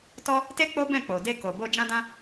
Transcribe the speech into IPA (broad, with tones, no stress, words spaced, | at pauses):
tɔ˦ | te˦ k͡po˦bɛ̃˦˨k͡po˨ de˧ko˨bo˧ d͡ʒã˦dã˦